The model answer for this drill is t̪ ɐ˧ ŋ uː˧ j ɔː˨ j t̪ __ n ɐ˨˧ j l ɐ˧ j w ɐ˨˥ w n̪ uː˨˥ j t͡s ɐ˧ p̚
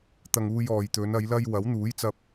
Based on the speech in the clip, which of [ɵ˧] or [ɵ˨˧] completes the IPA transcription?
ɵ˨˧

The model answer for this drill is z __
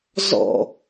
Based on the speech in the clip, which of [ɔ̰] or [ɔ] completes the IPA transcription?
ɔ̰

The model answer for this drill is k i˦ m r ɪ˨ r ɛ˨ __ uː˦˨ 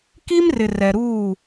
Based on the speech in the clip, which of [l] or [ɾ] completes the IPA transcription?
ɾ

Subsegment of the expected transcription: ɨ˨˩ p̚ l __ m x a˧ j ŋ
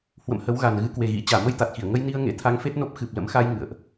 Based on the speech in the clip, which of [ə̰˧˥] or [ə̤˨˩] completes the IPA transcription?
ə̰˧˥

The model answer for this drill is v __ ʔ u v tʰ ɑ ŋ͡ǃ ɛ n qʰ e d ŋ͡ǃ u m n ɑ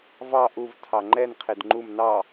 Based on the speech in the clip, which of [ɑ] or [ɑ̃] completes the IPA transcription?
ɑ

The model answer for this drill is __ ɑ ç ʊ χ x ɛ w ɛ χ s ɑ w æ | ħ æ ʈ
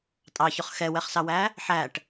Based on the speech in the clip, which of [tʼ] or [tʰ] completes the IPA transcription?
tʼ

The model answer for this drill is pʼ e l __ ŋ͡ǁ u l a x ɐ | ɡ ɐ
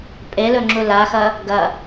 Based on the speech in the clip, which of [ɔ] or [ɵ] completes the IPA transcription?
ɵ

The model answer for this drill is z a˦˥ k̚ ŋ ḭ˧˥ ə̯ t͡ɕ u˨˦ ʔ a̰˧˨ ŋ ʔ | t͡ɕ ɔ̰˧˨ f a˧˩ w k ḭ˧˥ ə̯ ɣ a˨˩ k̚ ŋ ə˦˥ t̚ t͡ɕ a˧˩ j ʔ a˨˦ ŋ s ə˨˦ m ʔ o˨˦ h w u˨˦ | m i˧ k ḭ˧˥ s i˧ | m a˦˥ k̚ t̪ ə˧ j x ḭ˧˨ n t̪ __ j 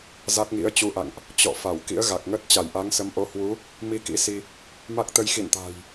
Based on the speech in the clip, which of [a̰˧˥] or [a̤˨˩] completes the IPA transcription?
a̤˨˩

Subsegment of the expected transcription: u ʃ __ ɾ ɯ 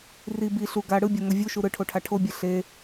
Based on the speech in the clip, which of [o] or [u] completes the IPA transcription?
u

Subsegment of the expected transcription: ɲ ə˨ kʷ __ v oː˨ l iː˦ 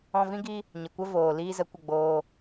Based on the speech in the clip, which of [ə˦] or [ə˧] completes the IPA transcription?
ə˦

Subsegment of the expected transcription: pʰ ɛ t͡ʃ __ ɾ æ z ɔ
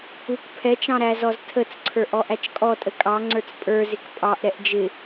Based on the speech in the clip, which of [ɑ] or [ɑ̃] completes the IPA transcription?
ɑ̃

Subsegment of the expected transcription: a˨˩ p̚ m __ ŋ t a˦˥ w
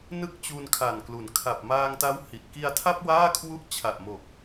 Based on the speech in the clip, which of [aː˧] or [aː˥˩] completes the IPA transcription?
aː˧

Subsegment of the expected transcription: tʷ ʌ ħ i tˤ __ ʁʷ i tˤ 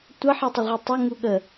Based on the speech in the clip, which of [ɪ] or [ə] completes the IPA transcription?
ɪ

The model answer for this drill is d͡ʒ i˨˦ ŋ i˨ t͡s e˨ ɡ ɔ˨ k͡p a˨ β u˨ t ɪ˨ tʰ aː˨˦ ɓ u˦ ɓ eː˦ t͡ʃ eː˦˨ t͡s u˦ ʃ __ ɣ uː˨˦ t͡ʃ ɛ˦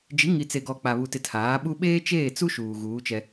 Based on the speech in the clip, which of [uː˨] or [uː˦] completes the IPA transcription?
uː˨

